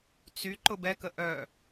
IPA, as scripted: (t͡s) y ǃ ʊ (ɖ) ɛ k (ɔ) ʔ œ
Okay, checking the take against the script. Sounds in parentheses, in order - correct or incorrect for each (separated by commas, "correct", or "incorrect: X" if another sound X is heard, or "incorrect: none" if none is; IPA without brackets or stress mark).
correct, incorrect: b, incorrect: ə